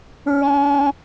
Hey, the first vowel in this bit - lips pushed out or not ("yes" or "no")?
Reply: yes